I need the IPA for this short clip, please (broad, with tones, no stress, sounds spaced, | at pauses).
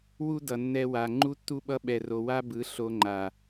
w u˦ d ʌ˨ nː ɛ˧ w a˨ ŋ͡ǃ u˦ tː u˦ ɓ ʌ˦ ɓ ɛ˧ r o˧ w a˦ b ɯ˨˦ ɬ o˧ ŋ͡ǃ a˨